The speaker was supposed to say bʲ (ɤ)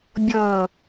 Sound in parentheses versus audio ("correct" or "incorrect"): incorrect